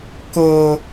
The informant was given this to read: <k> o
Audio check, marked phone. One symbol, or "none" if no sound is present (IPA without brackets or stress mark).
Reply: k